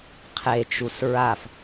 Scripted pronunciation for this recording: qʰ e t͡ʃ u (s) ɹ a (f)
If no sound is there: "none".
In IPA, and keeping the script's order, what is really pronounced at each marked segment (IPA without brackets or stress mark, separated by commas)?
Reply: s, f